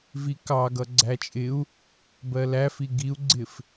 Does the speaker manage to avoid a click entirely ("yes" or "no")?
no